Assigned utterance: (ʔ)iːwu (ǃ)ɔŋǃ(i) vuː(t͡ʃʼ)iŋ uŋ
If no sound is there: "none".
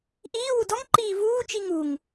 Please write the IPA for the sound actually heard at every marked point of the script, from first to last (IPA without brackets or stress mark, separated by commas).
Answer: ʔ, d, iː, t͡ʃ